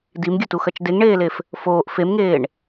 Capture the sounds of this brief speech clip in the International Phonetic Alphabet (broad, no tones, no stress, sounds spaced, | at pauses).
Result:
d i m ɡʲ ɵ t u x ɐ t͡ʃ d e ŋ ɳ eː l e f | f oː ʔ f e m ŋ eː ɳ